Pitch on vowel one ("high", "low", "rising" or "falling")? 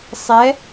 rising